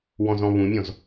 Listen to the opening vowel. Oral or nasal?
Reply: nasal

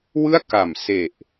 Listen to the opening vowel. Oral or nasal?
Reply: oral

